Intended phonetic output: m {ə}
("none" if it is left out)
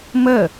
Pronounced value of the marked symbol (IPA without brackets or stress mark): ə